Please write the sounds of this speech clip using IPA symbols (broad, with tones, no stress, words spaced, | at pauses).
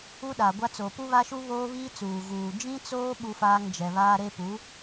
u˦ɗa˨ɡʷa˦ t͡so˨pu˦βa˦ʃu˦ βoː˦βiː˦t͡suː˨ ɣuː˨ d͡ʒĩ˦t͡soː˦ ɓu˦faː˦ŋd͡ʒɛ˨ βaː˦ɾe˦ pu˨˦